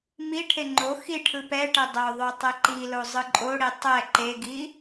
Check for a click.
present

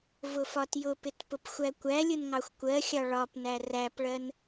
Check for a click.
absent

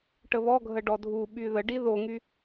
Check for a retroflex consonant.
present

